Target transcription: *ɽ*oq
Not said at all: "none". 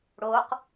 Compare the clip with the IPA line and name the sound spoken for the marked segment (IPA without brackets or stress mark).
ɽ